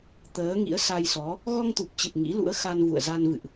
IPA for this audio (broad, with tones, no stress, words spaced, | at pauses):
t̪əː˨˦ŋḭ˧˥ə̯sa˧jsɔ˨˦ | ɣɔ˧ŋt̪u˨˩p̚t͡ɕɨ˨˩p̚ ŋḭ˧˥ lṵ˧˥ə̯xa˧nvṵ˧˨ə̯za˧n vɨ̰˧˨ʔ